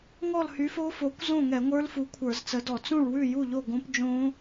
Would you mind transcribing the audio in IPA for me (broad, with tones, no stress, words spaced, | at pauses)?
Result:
ŋɔ˥˨lhy˨˥fo˦˥fo˨˥kʷ zõ˥˨ŋɛ˧˩˧ŋʷə˞˦˥l fu˨˥kʷʰə˞˧˩˧zt͡sə˨˥dɔ˧˩˧ t͡sũ˥˨ɭwʉ˥˨ju˥˨ʎo˥˨ ɡõ˦˥pd͡ʒõ˦˥